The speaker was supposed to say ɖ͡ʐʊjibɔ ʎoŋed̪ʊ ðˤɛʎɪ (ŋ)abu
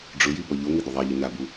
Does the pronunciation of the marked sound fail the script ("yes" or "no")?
yes